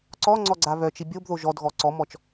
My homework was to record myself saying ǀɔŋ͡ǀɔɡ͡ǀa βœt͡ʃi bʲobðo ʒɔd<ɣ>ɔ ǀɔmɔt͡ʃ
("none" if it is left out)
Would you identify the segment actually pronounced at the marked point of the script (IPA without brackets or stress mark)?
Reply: ɣ